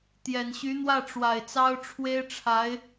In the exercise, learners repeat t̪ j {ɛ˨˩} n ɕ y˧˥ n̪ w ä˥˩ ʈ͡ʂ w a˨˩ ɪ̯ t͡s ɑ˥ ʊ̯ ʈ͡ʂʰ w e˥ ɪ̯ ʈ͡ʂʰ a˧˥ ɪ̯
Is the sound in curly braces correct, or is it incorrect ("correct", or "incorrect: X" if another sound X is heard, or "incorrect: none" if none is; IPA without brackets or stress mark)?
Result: correct